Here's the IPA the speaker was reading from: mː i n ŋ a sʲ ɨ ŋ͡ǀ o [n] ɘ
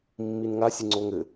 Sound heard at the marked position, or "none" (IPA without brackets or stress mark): ŋ